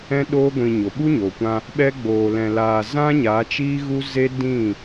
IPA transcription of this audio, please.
ɛ̃˦ ɗ oː˦ ɡʷ ĩ˧ ɲ o˨ ɓ u˦ ɲ oː˨ kʷ ã˧ | ɓ ɛ˦ ɡ͡b oː˧ l ɛ̃˧ l aː˧ z ã˦ ɲ aː˨˦ t͡ʃ iː˦ ɣ u˦ z e˦ d ĩ˦˨

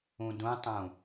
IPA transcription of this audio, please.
ũ d ũ tˤ ũ

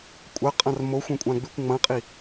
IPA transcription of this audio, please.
kʷʼ ɐ qʼ ã r m o xʷ ɐ̃ kʷʼ ã ɡ͡b ʉ kʷ ŋ͡m ɐ̃ qʼ i

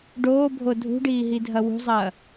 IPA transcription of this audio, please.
ɖ oː bʱ o dʱ ṳ ɖ iː ɦ i dʱ ɐ w ṳ zˤ ɐː

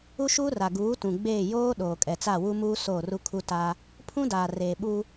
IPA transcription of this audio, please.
u˦ ʃ uː˦ r a˨ ɡ uː˨˦ t ũ˨ ɡ͡b eː˦˨ j oː˦ ɗ oː˨ kʼ ɛ˨ t͡s a˦˨ w u˦ m uː˦ s oː˦˨ r u˦ kʰ u˦ t aː˦ | pʰ ũ˦ d aː˨ r eː˨ ɓ uː˦

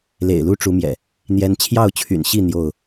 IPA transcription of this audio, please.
l ḛ˨˩ ɪ̯ l u˦ ʈ͡ʂ u˨˦ m j ɛ̰˨˩ | n̪ j ɛ˦ n t͡ɕʰ j ɑ˥˨ ʊ̯ t͡ɕʰ y̰˨˩ n ɕ i˥˨ n̪ j o˥˨ ʊ̯

